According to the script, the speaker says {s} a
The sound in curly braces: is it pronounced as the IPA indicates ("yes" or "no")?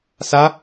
yes